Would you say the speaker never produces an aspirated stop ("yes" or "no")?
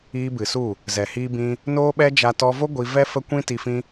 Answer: yes